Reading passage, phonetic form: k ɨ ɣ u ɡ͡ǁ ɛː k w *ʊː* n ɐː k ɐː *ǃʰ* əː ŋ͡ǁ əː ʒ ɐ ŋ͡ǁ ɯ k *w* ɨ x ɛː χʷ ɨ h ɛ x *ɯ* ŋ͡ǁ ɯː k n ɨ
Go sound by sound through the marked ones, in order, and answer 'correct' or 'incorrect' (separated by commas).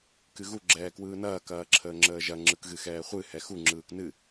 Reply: incorrect, incorrect, incorrect, incorrect